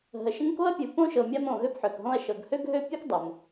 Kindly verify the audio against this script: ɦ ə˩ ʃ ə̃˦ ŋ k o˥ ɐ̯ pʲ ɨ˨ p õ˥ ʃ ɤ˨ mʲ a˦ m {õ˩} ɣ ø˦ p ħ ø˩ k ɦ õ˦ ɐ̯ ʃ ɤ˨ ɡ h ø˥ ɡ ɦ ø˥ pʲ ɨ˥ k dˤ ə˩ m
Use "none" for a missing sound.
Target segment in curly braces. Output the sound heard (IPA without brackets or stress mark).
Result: õ˨